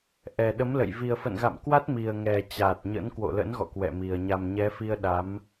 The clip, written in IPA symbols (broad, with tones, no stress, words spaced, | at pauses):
ʔɛ˨˩ɗə˨˦mlə̰˧˨j vi˨˩ə̯fə̰˧˨nɣa̰˧˨mkwa˦˥t̚ mi˨˩ə̯ŋɛ˨˩ t͡ɕa˨˩t̚ɲə̰˧˥n kwo̰˧˨lə̰˧˥nɣɔ̰˧˨ kwɛ̰˧˨mi˨˩ə̯ ɲa˨˩mɲɛ˨˦fi˧ə̯ ɗa˨˦m